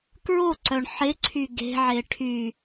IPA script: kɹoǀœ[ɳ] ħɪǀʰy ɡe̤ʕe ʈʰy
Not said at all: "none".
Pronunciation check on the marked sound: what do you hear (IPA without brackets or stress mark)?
ɳ